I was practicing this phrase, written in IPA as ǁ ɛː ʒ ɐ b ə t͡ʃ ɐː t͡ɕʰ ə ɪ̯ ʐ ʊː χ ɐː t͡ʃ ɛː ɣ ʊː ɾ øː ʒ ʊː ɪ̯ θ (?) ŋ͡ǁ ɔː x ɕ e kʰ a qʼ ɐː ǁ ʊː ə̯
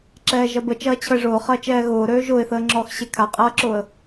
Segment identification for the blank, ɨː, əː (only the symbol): əː